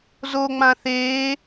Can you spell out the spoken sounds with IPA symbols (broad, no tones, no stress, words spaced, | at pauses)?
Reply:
zoŋ͡mã θeː